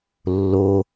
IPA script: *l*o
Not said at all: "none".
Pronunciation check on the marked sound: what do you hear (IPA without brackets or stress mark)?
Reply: lː